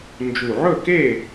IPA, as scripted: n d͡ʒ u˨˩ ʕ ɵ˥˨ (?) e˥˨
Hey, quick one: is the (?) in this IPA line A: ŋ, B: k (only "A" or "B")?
B